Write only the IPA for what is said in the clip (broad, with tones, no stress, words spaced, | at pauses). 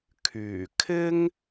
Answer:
kʰyː˨˩ kʰɪ˥ŋ